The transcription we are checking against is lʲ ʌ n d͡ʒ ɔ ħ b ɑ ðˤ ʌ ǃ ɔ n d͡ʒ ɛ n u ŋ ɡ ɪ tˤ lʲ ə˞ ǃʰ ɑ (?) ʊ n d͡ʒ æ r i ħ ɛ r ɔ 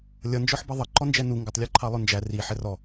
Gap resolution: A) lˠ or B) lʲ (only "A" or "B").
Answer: A